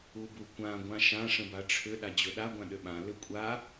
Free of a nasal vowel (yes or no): no